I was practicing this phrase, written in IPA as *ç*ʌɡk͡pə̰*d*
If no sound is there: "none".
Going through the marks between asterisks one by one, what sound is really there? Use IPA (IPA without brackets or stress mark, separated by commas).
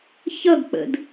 ç, d